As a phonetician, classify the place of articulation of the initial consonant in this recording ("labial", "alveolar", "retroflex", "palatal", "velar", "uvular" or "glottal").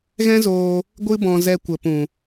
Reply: velar